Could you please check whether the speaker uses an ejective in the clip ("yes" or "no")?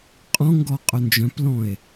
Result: yes